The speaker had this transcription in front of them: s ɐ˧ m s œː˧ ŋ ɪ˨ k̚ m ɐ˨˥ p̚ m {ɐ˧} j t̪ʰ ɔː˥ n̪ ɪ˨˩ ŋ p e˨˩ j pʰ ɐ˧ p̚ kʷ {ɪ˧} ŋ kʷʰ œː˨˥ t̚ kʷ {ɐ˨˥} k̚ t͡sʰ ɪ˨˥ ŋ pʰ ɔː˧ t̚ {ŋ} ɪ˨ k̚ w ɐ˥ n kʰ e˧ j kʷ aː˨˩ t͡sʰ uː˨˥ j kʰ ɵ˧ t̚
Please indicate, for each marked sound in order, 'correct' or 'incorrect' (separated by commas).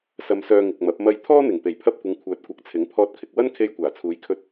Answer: correct, incorrect, correct, incorrect